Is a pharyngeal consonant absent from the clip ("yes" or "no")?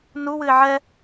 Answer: no